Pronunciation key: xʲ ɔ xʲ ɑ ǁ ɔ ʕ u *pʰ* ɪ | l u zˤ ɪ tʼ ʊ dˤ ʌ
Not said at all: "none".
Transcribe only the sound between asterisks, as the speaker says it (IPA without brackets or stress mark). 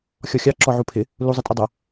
pʰ